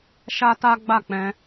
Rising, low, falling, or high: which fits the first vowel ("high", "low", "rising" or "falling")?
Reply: high